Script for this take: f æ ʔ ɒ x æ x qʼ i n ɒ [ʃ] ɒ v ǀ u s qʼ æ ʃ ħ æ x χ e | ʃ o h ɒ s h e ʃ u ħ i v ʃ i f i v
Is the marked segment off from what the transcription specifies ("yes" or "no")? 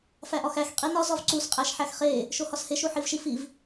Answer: yes